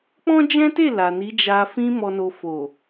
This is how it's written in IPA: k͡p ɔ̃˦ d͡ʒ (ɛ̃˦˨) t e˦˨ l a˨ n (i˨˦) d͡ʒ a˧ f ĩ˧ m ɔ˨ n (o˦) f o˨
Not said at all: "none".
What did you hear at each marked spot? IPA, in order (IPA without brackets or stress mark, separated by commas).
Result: ɛ̃˦, i˨˦, o˨